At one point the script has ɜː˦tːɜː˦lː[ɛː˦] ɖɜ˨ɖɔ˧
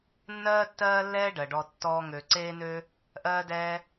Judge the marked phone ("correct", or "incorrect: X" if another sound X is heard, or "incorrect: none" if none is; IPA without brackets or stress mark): correct